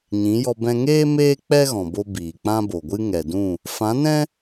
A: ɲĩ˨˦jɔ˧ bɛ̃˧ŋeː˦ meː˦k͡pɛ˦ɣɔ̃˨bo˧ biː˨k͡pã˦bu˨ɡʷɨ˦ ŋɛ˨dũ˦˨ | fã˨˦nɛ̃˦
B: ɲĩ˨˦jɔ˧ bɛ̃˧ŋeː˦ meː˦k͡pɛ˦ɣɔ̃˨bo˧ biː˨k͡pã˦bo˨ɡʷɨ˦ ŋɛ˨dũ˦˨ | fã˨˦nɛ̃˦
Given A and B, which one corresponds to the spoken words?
B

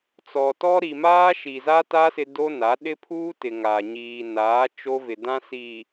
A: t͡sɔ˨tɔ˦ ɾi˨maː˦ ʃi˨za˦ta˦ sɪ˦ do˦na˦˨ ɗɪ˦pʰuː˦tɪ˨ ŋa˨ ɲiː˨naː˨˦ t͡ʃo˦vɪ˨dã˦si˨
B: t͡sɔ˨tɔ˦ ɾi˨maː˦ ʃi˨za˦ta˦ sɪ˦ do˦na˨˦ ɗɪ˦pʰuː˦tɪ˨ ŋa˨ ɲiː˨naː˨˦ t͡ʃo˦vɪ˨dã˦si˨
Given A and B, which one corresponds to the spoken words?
B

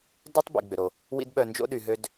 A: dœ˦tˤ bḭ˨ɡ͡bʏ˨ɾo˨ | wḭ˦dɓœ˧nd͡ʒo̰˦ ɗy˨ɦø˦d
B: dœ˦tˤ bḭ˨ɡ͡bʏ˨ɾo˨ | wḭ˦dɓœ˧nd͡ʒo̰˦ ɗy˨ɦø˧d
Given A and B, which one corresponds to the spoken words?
B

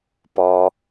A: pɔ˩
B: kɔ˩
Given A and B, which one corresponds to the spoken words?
A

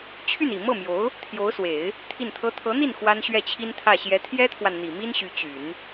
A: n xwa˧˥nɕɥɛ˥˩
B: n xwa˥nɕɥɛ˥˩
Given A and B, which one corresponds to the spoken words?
B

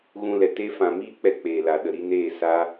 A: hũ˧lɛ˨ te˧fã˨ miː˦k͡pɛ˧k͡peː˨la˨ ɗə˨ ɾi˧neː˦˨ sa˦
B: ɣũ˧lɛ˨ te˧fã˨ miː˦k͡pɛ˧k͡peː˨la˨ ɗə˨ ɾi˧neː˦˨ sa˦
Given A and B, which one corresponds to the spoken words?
B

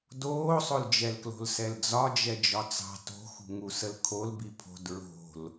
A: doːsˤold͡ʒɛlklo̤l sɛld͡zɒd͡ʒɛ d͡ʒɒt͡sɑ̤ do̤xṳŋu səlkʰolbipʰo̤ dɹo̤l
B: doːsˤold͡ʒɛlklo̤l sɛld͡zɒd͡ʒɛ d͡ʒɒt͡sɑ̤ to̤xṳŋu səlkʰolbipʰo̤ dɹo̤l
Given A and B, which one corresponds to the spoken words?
B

